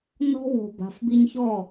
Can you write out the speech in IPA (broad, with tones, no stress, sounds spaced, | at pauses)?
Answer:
n ɔ̤˦ w o̤˨ b a̤˨ f b i˧ ɲ ç ɔ˦˨